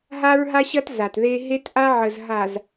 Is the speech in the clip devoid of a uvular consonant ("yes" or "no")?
yes